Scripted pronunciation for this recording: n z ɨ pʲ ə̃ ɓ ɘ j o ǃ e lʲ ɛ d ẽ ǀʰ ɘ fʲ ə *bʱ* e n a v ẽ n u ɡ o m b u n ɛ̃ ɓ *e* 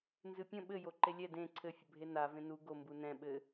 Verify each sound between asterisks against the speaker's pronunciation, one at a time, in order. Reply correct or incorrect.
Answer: correct, incorrect: ɘ

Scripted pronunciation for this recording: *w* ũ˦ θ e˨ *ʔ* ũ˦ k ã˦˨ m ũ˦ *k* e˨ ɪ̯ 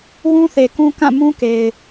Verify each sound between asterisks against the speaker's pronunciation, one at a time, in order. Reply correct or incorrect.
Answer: correct, incorrect: k, correct

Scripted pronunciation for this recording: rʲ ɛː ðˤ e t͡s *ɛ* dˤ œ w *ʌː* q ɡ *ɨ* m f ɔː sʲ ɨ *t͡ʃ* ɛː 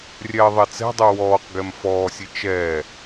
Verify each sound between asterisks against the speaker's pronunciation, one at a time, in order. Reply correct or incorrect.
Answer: incorrect: ɛ̤, incorrect: ɔː, incorrect: ɛ, correct

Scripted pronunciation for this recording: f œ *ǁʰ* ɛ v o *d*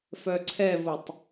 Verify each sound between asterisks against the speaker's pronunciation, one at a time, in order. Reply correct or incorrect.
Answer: incorrect: ǀʰ, incorrect: tˤ

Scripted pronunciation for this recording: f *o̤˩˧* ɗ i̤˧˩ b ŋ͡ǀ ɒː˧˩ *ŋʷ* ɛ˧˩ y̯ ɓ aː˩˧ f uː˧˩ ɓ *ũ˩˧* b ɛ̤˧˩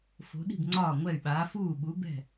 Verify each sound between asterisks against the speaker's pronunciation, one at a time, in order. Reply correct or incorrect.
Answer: correct, correct, incorrect: u˩˧

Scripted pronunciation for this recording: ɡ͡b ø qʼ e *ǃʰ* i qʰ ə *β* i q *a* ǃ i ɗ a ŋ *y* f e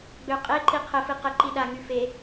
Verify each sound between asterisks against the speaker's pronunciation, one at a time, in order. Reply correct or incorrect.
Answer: incorrect: ǃ, incorrect: f, incorrect: ə, correct

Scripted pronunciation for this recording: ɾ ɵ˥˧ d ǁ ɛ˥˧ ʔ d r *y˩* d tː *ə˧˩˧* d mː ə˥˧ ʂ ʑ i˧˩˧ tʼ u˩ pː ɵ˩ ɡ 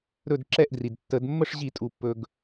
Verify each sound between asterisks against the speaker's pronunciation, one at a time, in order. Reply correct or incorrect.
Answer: incorrect: i˩, correct

